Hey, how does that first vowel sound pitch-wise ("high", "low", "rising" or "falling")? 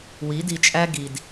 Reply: rising